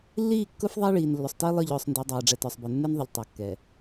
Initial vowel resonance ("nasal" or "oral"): oral